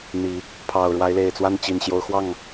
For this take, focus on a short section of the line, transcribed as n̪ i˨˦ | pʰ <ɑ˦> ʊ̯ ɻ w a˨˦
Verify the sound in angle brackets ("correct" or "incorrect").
incorrect